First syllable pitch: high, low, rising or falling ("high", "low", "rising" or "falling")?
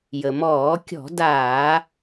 low